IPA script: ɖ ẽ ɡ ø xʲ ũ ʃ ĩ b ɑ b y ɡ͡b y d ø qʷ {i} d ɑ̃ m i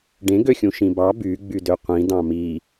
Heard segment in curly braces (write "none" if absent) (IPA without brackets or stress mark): ĩ